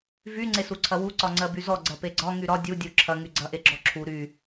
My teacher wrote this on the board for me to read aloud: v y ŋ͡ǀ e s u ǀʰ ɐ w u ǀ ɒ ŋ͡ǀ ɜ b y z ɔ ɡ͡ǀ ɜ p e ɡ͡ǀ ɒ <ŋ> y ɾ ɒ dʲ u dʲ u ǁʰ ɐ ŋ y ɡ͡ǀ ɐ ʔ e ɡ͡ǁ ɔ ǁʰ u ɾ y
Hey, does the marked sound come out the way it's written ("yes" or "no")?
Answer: yes